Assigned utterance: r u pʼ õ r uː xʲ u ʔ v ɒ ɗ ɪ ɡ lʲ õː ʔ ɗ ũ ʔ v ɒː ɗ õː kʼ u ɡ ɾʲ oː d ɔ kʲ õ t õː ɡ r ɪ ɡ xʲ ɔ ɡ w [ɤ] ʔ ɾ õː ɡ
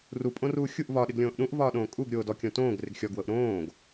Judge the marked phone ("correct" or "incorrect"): correct